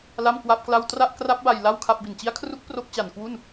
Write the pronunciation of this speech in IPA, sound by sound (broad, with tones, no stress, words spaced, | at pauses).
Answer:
la˥˩mkwa˥˩p̚kla˥˩w tra˥˩ʔ kra˦˥p̚ba˧j la˥˩wkʰa˥˩p̚ bi˨˩nt͡ɕi˦˥a̯kʰru˦˥k̚ pro˦˥k̚t͡ɕa˨˩n kwu˥˩n